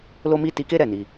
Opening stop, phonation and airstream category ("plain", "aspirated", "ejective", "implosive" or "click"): plain